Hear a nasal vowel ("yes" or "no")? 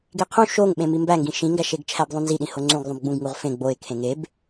yes